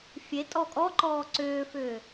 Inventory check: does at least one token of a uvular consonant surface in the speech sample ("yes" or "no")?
no